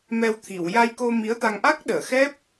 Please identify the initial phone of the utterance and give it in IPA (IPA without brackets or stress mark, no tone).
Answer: m